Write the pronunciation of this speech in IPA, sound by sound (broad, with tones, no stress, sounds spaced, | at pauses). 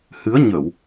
h ɨ˨˦ ə̯ ɲ ə˧˩˨ w